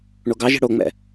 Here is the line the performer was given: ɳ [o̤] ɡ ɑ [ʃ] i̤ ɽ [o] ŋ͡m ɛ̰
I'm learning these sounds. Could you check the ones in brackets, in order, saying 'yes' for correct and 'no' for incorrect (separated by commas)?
no, no, yes